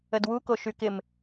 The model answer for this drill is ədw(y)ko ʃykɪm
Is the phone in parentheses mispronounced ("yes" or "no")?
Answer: yes